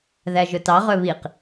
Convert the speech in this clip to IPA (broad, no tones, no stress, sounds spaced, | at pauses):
ð æ ʒ ɵ t ɑ ʁ œ β i q